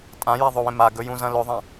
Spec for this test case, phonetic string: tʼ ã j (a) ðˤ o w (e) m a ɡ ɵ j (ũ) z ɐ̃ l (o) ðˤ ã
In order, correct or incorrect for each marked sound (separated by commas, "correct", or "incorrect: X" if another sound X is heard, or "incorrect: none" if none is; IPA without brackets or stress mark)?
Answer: correct, incorrect: ẽ, correct, incorrect: ɵ